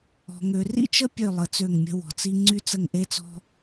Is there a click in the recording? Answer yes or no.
yes